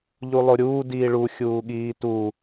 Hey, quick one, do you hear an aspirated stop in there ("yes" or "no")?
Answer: no